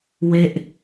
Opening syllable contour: falling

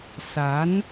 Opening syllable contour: rising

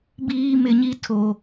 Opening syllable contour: high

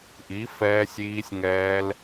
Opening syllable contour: rising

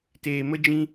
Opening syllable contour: low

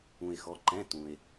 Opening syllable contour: low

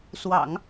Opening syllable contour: low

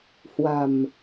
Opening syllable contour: low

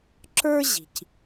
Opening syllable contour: high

